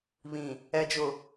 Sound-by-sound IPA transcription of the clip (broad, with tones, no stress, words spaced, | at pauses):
βĩ˨ | ɛ˨d͡ʒʊ˨